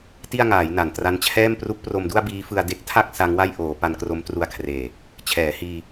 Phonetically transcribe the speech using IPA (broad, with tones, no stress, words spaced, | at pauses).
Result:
ti˥˩a̯ŋaː˩˦j na˨˩ntra˧nt͡ɕʰɛː˥˩m pru˦˥k̚pro˧mdu˥˩a̯ biː˦˥fɯ˧a̯ de˦˥k̚tʰa˥˩k̚ sa˦˥ŋwa˥˩j ʔoː˩˦ pa˧nkro˦˥mtru˧a̯kʰreː˨˩ | t͡ɕʰɛː˩˦hiː˧